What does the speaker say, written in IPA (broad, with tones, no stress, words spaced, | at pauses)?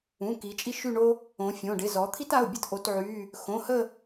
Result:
ũ˩˧˩ ki˩˧t͡ʃʼi˦ʃy˦˨ɳo˦ | õ˩˧ fʲõ˩˧˩ɖɪ˩˧˩ zɔ˩˧t̪ʰi˦ta˩˧˩ʊ̯ bʲə˦tʔo˩˧tʕy˩˧˩ | xõ˩˧˩hə˦˨